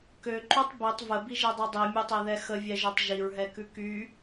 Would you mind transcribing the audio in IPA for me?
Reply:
k ø ǃ ʉ tˤ b i tˤ v ə b i ʒ i dˤ i dˤ i mʲ e tˤ e ð ɛ x ə vʲ ɛ ʒ ø tˤ ʒ i ɹ ɦ ɛ k ʉ k y

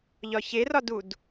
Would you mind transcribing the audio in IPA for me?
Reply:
ʎ ɒ ç e r ɒ d u d

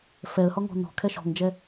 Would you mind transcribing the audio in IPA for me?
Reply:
f ɛ ə̯ h ɔ ŋ ɔ̤ n̪ ɔ̤ kʰ ɛ ʃ ɔ̤ ŋ d͡ʒ ɛ

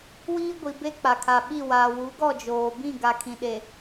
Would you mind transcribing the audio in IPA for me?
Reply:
w iː˦ ɡʷ i˨ b e˦ k͡p a˨ kʰ a˨ ɓ i˦˨ w aː˨ w u˨˦ ɡ ɔ˦˨ d͡ʒ oː˨ b ĩ˦˨ ɡ a˨ kʰ ĩ˨ ɗ e˨

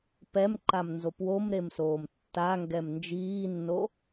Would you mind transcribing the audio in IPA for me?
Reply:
p ɛ m ǃ a m n z o p w o m ɾ e m s oː m tː a ŋ ɡ ɛ m n d͡ʒ iː nː o

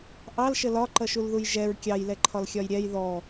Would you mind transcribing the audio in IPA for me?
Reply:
ʔ ɑ l ʃ ə l ɒ ǃ ʌ ʃ u l ð u j ʒ ɛ ɹ kʲ ɑ j l ɛ ǃʰ ɒ l xʲ ɒ j ɾʲ ɛ j ð ɔ

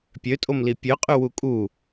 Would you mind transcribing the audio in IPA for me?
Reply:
pʲ ø tʼ o m l i pʲ ø qʼ y w u kʼ u

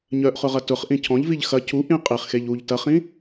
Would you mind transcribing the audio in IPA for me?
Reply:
ɲ œ ʔ χ ʊ ʁ ɐ t ʊ χ ʔ ĩ cʰ ɔ̃ ʎ v i ʎ x ɐ cʰ u ʔ ĩ qʼ i χ x e ʎ u ʎ t ɐ χ ĩ

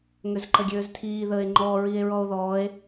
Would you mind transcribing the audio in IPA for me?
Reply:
ŋ ø z ǃ ə ɡʲ øː z tʰ iː ð əː e̯ ŋ͡ǃ ɔː ɹ i e̯ ɹ ɔ o̯ ð ɔː e̯

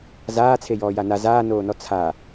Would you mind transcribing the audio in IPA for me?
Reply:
z aː t͡sʰ e j ɔː j a n a z aː n oː n ɔ t͡sʰ a

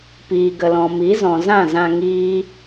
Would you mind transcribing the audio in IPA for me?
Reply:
p iː˨ ɡ ə˨ l ɔ̃˨ m i˨˦ z ɔ̃˨ z ã˦˨ z ã˧ ŋ iː˦

